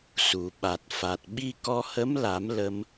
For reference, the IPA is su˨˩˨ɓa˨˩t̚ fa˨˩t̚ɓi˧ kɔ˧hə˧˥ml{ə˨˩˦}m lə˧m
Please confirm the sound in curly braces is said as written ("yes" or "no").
no